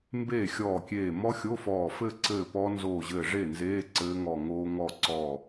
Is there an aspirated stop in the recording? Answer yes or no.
no